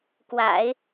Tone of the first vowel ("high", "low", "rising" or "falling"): low